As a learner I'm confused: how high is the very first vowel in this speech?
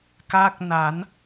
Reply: low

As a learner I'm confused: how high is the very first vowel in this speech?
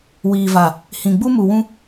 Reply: high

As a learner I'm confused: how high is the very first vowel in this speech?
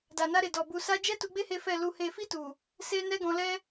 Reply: low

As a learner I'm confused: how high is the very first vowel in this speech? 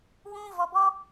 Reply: high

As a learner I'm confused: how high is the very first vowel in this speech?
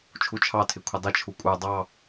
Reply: high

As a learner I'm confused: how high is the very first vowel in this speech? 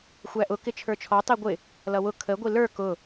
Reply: low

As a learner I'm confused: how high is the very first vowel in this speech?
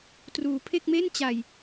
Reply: high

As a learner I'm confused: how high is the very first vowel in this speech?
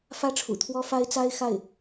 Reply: low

